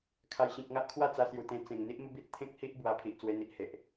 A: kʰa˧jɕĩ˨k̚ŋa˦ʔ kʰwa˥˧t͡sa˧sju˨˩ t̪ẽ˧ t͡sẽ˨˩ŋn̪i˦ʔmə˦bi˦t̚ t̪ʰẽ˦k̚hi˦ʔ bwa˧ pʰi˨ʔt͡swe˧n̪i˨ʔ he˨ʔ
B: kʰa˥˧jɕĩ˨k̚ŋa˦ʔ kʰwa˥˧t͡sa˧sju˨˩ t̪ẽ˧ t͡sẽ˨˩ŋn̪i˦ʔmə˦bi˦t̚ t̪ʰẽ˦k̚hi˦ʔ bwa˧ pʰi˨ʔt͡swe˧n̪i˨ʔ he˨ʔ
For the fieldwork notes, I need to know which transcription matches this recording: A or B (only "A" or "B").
A